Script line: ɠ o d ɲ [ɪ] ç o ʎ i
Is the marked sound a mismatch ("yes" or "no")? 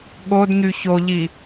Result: yes